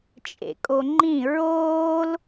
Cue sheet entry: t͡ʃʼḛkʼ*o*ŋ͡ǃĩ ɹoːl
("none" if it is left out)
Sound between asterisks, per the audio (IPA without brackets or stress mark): o